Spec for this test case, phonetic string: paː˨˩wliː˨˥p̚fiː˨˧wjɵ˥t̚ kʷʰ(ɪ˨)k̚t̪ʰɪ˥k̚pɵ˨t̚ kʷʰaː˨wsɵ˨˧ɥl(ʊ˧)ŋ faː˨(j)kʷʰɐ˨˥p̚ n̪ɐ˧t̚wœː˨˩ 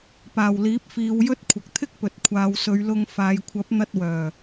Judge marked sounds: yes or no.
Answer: yes, yes, yes

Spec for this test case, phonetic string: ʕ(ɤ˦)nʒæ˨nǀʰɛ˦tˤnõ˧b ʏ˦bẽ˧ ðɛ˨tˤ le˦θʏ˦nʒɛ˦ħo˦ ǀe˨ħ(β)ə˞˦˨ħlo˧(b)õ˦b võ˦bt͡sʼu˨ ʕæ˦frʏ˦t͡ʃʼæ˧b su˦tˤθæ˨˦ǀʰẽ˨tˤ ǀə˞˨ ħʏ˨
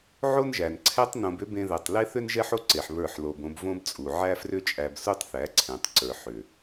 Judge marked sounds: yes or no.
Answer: no, yes, yes

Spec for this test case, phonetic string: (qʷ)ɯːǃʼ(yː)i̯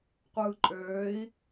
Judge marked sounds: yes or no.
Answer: yes, no

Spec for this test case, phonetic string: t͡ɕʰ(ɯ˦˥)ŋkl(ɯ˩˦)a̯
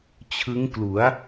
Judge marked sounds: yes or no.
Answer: yes, no

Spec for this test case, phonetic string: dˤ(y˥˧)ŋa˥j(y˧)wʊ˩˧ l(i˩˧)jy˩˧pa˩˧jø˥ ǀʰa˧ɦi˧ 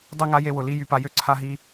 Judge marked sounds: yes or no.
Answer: yes, no, no

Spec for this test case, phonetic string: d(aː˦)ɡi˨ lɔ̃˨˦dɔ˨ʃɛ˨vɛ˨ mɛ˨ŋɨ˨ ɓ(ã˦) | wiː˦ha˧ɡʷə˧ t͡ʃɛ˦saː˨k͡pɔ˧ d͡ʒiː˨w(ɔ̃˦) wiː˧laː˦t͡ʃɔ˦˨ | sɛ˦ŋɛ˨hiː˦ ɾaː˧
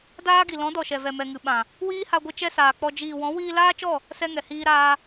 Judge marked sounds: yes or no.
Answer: yes, no, no

